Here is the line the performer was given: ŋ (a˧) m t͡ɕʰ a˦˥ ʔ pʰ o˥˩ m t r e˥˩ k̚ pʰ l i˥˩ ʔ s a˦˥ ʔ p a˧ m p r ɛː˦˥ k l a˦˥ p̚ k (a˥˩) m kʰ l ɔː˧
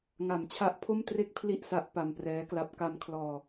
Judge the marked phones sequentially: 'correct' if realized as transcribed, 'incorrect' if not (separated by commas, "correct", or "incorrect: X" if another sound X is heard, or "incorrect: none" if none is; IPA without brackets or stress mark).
incorrect: a˨˩, incorrect: a˧